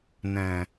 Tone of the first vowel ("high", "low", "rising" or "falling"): low